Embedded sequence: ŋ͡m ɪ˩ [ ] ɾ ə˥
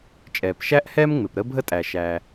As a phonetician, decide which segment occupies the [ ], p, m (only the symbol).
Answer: p